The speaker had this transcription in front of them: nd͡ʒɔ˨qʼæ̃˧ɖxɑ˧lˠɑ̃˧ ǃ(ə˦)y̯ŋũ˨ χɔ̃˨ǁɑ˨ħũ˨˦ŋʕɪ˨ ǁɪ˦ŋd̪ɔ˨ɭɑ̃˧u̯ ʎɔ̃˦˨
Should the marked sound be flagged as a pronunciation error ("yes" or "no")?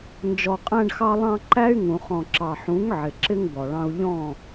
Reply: yes